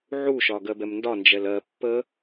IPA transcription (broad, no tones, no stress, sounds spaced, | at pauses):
ʕ u ʃ ɒ ɡ ɜ b ɛ m n d ɒ n d͡ʒ ɛ l ɜ pː ə